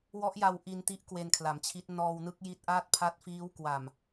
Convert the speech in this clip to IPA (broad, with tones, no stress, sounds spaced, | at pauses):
w ɔ˦˥ ʔ j a˧ w ʔ i˧ n t i˦˥ ʔ k w e˧ n kʰ l a˩˦ m t͡ɕʰ i˦˥ t̚ n ɔː˧ w n ɯ˦˥ k̚ j i˦˥ t̚ ʔ aː˥˩ t̚ pʰ a˦˥ t̚ f iː˦˥ w k w a˨˩ m